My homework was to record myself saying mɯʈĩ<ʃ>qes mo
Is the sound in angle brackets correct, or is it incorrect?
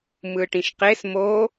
correct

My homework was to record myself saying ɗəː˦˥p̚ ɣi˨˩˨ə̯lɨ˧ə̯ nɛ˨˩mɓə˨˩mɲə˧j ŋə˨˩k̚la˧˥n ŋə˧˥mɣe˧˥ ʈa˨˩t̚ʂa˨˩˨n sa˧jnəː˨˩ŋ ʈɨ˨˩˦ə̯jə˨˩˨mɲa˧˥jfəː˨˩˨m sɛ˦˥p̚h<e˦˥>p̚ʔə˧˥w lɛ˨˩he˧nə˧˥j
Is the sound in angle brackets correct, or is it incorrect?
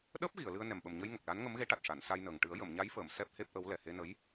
correct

